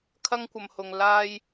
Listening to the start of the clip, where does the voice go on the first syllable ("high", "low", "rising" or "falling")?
high